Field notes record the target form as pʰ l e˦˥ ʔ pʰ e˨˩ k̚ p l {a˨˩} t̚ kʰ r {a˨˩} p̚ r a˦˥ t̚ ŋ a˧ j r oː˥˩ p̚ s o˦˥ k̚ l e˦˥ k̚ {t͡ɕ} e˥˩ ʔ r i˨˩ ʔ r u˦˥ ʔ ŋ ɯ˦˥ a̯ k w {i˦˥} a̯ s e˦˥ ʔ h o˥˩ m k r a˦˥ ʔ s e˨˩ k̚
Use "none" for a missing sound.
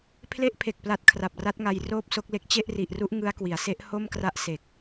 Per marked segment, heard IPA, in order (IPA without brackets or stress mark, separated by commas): a˨˩, a˨˩, t͡ɕ, i˩˦